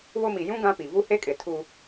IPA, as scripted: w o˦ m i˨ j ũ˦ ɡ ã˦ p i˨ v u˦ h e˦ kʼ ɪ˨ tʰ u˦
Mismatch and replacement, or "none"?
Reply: none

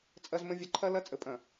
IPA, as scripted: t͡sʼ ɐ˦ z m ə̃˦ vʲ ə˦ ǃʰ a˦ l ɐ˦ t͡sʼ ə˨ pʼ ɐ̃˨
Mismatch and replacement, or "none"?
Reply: a˦ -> ɐ˦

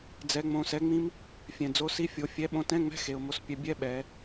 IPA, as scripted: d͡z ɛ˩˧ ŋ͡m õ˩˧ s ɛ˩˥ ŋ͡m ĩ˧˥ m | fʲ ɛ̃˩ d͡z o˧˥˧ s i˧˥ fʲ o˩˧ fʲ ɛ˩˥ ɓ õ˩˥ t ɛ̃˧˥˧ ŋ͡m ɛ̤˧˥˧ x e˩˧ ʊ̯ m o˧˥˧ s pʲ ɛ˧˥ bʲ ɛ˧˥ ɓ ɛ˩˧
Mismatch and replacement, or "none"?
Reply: none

